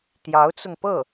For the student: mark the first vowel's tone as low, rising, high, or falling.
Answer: rising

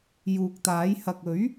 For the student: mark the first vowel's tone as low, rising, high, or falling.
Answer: low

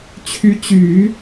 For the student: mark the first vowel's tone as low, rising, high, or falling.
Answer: rising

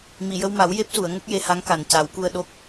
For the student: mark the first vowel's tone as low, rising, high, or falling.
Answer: low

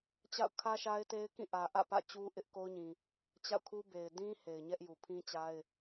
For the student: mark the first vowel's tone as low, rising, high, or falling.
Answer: falling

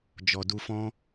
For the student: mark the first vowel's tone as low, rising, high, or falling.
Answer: low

